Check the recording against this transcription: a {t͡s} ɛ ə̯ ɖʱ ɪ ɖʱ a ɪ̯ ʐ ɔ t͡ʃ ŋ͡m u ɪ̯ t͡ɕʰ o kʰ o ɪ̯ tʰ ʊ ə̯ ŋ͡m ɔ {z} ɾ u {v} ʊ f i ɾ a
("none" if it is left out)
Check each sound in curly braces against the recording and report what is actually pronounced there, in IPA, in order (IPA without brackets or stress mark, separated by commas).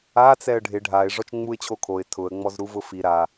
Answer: t͡s, z, v